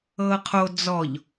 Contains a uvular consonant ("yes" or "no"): yes